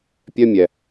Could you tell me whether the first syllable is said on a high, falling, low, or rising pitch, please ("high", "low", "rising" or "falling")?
high